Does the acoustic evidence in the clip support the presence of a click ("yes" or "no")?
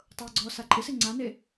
yes